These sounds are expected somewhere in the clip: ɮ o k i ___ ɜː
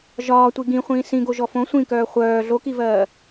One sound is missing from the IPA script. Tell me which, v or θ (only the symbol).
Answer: v